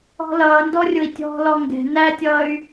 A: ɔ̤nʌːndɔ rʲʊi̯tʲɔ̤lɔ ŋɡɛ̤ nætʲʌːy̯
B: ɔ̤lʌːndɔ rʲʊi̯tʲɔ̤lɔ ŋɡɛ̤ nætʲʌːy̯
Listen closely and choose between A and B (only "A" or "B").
B